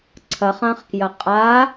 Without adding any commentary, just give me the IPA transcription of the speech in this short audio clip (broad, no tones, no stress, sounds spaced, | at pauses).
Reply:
ǀʰ ɐ χ ã χ k j ɐ qʼ a